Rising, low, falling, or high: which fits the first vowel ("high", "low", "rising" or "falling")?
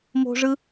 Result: high